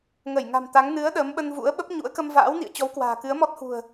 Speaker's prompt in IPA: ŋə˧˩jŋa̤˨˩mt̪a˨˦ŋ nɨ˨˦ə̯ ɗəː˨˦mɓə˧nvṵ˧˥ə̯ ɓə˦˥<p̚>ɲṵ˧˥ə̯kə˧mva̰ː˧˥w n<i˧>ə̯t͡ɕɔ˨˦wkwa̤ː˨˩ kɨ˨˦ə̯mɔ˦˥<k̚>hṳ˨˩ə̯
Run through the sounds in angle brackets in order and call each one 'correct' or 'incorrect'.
correct, incorrect, incorrect

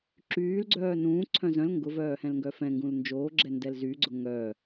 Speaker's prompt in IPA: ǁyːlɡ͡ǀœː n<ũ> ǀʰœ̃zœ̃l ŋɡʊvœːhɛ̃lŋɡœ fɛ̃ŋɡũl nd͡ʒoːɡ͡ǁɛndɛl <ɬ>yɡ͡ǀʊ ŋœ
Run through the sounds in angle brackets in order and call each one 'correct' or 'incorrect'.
incorrect, incorrect

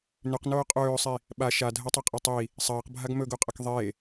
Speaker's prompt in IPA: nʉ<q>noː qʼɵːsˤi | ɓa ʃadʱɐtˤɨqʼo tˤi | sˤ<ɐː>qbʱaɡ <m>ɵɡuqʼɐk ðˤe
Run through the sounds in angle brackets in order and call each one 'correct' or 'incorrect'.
correct, correct, correct

